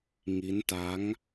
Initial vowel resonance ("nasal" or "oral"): oral